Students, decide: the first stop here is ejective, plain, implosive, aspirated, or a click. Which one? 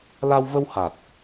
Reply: plain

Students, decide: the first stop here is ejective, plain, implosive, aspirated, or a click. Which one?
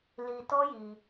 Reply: plain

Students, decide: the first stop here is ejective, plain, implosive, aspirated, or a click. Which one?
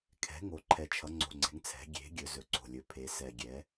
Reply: aspirated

